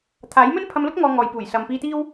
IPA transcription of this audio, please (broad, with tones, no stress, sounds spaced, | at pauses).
t̪ʰ aː˨˥ j m ɵ˥ n pʰ ɐ˧ m l ʊ˥ k̚ ŋ ɔː˧ ŋ ɔː˨ j p uː˨˩ j s ɐ˨ m p iː˧ t̪ iː˥ w